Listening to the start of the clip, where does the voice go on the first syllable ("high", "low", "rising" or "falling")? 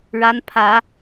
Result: rising